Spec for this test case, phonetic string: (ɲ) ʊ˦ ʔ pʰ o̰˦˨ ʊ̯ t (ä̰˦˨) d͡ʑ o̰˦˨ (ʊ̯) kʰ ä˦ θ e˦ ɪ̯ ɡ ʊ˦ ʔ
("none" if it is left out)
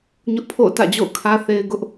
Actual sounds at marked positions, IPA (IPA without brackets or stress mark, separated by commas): ɲ, ä̰˦˨, ʊ̯